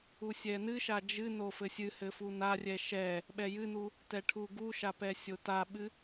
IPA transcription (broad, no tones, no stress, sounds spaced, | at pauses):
u sʲ ɛ n ɨ ʃ a d͡ʒ ɨ n o f ɘ sʲ ɨ h ɘ f u n a rʲ ɛ ʃ ɛ | ɓ ɛ j ɨ n u | t ɛ ʈʰ u ɡ u ʃ a p ɛ sʲ o t a ɓ ɨ